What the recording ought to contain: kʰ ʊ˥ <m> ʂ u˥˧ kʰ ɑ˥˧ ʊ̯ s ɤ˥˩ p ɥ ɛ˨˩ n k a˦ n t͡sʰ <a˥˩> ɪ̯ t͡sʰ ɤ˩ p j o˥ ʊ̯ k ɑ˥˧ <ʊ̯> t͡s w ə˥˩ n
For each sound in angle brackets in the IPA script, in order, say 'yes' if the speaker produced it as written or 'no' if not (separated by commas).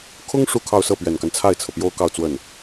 no, yes, yes